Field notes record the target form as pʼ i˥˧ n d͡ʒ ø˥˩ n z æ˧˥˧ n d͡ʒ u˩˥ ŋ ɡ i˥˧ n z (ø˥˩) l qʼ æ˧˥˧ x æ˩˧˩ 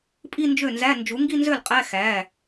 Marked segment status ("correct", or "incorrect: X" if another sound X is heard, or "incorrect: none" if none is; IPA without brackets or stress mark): correct